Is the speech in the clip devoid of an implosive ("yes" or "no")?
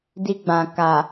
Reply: yes